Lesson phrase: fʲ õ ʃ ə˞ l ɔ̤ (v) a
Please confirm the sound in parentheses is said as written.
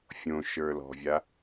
no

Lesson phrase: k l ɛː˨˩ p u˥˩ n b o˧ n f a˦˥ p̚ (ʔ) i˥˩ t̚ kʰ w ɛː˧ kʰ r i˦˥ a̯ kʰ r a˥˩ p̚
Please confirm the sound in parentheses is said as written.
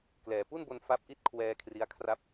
yes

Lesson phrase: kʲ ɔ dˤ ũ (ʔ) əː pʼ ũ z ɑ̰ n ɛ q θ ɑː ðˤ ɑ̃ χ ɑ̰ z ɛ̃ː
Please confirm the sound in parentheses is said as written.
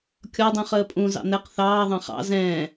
no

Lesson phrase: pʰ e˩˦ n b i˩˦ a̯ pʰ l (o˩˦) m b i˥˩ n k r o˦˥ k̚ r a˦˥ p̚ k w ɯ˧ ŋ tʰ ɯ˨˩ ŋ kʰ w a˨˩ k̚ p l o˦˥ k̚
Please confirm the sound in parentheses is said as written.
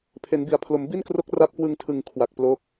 yes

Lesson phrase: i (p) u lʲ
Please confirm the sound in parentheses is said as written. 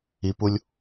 yes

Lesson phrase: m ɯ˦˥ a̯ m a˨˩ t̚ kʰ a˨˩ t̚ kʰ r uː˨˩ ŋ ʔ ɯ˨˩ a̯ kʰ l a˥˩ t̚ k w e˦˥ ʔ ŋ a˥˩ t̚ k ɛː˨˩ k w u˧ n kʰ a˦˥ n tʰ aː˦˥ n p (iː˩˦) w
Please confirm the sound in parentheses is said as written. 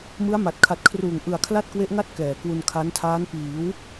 yes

